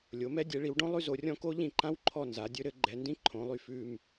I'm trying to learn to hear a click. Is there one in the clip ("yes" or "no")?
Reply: yes